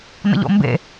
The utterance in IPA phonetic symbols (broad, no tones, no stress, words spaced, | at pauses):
nə̰ʎo̰mbḛ